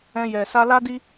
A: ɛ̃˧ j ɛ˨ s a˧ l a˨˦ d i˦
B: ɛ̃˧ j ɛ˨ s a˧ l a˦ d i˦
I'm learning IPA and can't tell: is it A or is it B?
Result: B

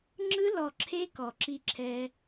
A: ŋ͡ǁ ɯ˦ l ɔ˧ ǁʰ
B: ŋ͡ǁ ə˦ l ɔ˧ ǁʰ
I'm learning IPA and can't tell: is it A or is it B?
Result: A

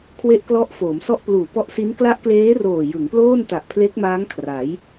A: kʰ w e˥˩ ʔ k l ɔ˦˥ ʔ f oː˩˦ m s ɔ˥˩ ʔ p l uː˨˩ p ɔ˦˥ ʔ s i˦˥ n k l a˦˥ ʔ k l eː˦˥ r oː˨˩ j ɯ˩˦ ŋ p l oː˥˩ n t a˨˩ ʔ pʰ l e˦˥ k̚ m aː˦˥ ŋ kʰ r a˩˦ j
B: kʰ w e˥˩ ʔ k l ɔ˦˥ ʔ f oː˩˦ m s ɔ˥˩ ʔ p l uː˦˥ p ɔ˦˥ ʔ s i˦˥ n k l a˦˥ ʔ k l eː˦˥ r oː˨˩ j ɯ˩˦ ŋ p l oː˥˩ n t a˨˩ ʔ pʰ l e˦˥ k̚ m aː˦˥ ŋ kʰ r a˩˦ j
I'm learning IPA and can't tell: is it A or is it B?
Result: A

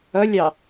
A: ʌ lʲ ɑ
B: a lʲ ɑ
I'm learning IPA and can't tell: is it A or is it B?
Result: A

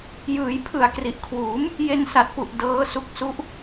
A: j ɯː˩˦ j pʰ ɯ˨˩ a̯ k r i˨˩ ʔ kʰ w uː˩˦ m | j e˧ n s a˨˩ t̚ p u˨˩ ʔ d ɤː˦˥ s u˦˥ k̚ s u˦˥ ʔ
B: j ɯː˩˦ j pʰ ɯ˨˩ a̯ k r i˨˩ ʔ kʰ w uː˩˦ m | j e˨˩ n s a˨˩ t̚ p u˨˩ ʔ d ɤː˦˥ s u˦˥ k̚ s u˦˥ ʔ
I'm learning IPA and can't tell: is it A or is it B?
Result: A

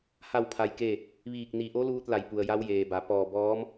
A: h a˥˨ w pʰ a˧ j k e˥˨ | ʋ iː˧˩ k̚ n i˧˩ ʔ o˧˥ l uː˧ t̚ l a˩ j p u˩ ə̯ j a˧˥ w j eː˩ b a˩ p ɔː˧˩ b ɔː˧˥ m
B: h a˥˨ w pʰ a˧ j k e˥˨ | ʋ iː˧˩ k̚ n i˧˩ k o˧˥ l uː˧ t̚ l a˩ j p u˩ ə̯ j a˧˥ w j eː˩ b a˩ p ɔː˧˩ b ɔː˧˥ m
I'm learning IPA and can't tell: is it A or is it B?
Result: A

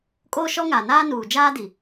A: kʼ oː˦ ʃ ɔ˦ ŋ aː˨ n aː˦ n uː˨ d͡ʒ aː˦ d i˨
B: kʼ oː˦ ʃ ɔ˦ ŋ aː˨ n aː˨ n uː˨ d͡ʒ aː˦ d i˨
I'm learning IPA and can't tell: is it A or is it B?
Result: A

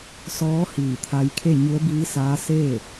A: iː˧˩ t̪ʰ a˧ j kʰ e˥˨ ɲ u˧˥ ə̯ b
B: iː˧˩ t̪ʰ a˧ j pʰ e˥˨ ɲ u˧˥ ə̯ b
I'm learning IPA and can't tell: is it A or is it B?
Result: A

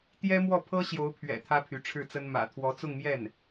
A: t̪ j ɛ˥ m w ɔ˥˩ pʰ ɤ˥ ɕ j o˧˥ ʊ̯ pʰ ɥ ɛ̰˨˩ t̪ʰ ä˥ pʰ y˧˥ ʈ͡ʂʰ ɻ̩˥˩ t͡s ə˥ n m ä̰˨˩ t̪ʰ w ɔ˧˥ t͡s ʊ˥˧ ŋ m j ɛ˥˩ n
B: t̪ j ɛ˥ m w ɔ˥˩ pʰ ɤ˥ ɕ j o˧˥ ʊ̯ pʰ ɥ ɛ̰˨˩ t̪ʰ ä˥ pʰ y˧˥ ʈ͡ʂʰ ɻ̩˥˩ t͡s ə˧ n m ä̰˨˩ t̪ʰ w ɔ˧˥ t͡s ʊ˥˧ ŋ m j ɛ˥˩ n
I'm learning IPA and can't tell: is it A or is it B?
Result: A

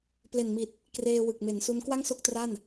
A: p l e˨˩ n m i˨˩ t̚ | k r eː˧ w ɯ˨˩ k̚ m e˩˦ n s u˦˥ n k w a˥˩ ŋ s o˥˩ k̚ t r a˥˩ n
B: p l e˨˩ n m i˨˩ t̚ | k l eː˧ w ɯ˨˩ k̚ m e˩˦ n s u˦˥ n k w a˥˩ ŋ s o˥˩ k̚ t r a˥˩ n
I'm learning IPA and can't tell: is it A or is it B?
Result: A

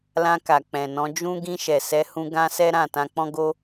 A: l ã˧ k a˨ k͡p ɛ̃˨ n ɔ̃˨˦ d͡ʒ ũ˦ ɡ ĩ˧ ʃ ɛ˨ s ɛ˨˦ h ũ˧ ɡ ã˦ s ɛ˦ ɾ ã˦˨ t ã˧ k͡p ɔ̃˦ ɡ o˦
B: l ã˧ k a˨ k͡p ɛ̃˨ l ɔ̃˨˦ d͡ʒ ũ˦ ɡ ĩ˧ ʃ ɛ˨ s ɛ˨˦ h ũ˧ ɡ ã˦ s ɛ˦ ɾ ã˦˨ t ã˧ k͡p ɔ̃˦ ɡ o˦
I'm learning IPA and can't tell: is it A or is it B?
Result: A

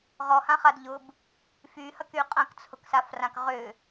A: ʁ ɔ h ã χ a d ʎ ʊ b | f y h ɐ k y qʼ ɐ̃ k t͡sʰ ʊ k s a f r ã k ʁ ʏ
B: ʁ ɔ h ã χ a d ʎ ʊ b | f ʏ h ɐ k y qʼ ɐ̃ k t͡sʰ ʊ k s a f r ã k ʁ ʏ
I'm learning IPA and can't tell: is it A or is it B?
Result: A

